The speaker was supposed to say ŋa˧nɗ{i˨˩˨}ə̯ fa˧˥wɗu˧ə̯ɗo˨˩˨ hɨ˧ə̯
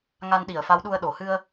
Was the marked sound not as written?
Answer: no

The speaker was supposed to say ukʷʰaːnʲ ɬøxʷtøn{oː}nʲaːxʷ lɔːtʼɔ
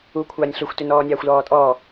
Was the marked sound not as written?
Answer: yes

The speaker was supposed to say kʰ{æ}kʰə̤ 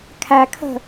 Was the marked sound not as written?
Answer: no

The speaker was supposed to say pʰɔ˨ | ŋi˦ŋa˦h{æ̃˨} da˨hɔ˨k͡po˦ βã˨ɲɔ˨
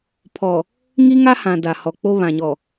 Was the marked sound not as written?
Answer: yes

